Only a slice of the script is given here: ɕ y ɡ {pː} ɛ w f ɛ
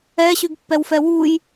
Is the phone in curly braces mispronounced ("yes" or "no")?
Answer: no